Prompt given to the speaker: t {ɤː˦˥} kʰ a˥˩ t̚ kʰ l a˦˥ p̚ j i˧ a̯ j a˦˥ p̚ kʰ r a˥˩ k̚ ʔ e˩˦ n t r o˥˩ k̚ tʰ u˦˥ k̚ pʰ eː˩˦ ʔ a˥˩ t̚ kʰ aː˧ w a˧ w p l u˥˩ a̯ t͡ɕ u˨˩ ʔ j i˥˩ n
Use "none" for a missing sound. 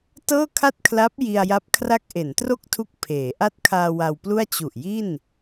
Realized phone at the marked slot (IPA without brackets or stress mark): ɤː˥˩